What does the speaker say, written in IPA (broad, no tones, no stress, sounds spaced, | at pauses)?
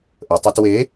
ʔ ə tˤ a t w e